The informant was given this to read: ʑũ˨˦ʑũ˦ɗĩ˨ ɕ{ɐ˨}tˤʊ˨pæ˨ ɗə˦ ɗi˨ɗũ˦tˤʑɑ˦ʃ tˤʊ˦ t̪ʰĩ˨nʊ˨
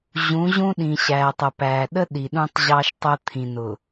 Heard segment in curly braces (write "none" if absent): æ˨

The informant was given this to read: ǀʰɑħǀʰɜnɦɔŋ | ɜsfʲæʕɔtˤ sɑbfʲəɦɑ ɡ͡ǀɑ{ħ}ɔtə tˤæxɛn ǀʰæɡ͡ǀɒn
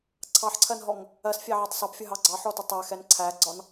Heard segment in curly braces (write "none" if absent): ħ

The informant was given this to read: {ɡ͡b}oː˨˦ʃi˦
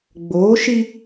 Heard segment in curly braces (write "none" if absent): ɡ͡b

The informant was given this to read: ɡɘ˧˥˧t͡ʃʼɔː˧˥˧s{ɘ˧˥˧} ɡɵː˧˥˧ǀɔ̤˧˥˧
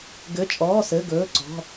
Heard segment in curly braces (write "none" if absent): ɘ˧˥˧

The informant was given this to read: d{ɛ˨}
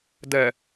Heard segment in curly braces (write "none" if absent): ɛ˨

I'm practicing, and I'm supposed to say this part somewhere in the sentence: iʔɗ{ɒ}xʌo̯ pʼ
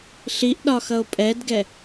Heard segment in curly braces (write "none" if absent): ɒ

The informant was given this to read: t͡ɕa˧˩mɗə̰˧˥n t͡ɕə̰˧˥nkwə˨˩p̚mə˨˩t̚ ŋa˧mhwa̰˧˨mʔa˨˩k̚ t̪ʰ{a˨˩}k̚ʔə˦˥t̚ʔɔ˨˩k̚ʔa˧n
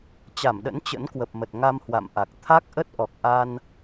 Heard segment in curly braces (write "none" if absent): a˦˥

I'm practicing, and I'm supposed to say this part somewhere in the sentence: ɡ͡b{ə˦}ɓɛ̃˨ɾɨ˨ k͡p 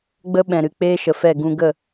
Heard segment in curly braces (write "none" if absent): ə˦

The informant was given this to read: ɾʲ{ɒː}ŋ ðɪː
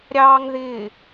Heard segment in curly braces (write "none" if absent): ɑː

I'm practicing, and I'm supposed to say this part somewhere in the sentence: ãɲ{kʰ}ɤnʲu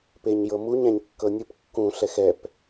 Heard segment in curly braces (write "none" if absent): kː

